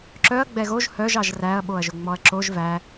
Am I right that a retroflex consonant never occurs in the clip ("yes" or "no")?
yes